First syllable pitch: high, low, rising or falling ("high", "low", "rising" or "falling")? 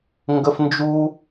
high